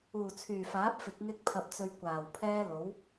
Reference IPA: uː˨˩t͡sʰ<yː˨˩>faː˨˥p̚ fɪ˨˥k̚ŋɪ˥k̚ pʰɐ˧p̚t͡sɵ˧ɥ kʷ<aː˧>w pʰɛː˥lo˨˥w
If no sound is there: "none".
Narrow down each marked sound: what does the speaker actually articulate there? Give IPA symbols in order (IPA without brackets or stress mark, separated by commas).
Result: yː˨˩, aː˨˩